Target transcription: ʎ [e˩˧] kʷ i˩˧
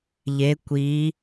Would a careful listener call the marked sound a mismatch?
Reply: no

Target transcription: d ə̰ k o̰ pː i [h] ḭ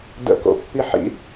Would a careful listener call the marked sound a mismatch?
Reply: yes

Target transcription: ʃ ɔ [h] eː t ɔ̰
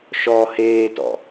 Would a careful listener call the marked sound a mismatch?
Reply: no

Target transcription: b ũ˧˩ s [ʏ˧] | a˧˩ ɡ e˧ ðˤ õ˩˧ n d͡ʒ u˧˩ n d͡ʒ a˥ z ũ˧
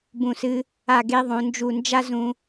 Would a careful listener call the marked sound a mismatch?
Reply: yes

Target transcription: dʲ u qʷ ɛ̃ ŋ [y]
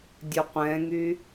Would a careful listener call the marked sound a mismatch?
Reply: no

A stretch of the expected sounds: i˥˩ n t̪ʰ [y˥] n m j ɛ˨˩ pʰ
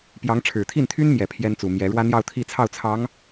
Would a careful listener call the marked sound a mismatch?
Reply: no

